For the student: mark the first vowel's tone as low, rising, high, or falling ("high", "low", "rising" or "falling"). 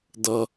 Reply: low